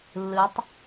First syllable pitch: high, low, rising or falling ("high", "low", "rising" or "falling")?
rising